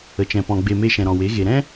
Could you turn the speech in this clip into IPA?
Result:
ə˨ t͡ʃ ɛ̃˨ p ɔ̃˨ ɡ͡b e˨ m e˧ ʃ ɛ̃˨ ɾ ɔ̃˨ w e˨˦ ɣ e˨ ɾ ɛ̃˦

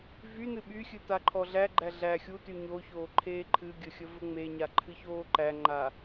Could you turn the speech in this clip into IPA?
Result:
v y n ɨ ɓ y xʲ ɨ t a ǃʰ ɔ ɮ æ ɡ͡ǃ æ ɮ æ xʲ u t y ɲ o ç oː ǃʰ eː ǃʰ ɨ ɡʲ ə xʲ ə v ə ŋ͡m e ɲ a ǃʰ ɨ ç oː ǃ æ ŋ͡ǃ a

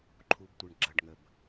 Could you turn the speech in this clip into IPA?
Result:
ǃʰ u˨ b tʷ ə˨ ɳ ɡ͡ǁ ɐ˨ ɖ ŋ ə˨ b

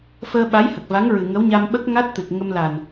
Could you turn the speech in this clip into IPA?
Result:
f əː˧ ɓ a˧˥ j h ə˨˩ k̚ v a˧˥ ŋ ɹ ɨ˨˩ ŋ ə˧˥ w ɲ a˧ m ɓ ə˦˥ k̚ ŋ a˦˥ t̚ t̪ ɨ˨˩ k̚ ŋ ə˧ m l a˨˩ n

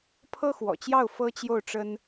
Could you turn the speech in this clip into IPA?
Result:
pʰ ɤ˥ x w ɔ̰˨˩ t͡ɕ j ɑ˥˩ ʊ̯ f ɤ˥ t͡ɕ j o˥˩ ʊ̯ ʈ͡ʂ ə˥ n

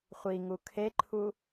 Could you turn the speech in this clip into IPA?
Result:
χʷ i ŋ u kʰ e ǃʰ u

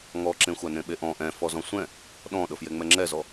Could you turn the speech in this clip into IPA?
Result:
ŋ ɔ ǁ ẽ xʷ a n ẽ ɓ e ʔ ɔ̃ ʔ ɛ̃ f ɔ z ɔ̃ sʷ ɛ̃ | ɗ ɔ̃ ɗ ɤ f j e ŋ͡m ɛ ŋ͡ǁ ɛ z ɔ

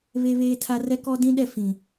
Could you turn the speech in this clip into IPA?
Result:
β e˦ β eː˦ tʰ a˦ r ɛ˦ k ɔ˦ d ĩ˦ ɗ ɛ˦˨ f ĩ˨

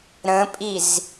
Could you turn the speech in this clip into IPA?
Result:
ɾ ə̃ pʼ i z

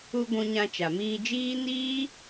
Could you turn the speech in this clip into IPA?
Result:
u˧ ɡʷ ũ˧ ɲ ã˧ t͡ʃ a˨ m iː˧ d͡ʒ iː˦ n iː˦

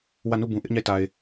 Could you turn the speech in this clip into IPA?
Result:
w ä˦˨ n u˦˨ b ũ˨ ʔ ɪ˦ ʔ ɲ a˦˨ ɪ̯ t a˨ ɪ̯

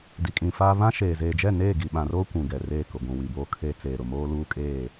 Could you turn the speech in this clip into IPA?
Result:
d i˨ kʼ ĩ˨ f aː˦ β ã˦ ʃ eː˨ z eː˨ d͡ʒ ɛ˦˨ n eː˦˨ ɡ i˨ ɓ ã˨ r oː˦ kʷ ũ˨ ɡ ɛ˨ r eː˦˨ k ʊ˨ ɡʷ ũ˨ w i˨ b oː˦ kʰ eː˦ t͡s eː˨ ɾ ʊ˨ m oː˦ l uː˦ kʼ eː˦˨

